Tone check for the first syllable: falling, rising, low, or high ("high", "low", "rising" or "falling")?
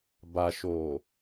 low